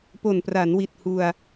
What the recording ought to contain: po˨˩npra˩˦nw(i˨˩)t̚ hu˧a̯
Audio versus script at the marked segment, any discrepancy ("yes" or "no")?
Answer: no